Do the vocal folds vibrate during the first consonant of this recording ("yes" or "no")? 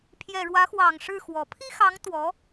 no